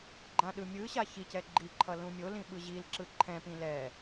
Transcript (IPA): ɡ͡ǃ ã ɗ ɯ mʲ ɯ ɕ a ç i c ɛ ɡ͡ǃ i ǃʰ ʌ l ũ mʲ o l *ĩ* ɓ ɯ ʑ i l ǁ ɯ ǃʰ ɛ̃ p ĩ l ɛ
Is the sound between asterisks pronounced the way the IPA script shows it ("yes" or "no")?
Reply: yes